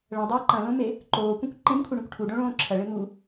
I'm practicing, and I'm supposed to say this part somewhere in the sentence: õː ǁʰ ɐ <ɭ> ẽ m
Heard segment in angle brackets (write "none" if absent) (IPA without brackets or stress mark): ɭ